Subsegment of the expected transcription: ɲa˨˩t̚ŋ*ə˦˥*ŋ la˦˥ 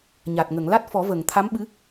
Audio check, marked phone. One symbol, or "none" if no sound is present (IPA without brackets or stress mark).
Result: ə˨˩˨